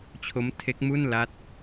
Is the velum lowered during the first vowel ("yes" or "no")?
no